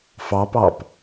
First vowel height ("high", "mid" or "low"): low